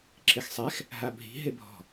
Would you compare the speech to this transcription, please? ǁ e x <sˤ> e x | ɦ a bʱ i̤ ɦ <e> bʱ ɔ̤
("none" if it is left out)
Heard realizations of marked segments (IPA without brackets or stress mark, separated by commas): sˤ, e